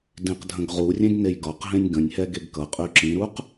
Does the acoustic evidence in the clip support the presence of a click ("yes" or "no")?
yes